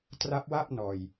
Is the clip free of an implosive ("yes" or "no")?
yes